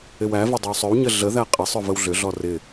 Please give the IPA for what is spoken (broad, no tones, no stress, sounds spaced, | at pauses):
ɪ w æ v ɪ dˤ ə w sˤ ʏ w ɲ ə ɮ ə ð æ qʼ ɪ sˤ ʏ v ə w ɮ ʏ ɮ ɔ r ɪ